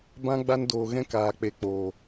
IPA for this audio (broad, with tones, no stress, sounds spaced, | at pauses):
b ã˦ ɡ͡b a˦ n d oː˧ ɣ ɛ̃˦ k aː˨ k͡p e˨ k͡p oː˨